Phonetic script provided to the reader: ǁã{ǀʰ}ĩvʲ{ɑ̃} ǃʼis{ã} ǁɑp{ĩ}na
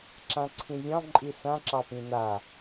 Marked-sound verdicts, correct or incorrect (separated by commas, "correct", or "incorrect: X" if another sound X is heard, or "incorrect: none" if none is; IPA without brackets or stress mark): correct, correct, correct, correct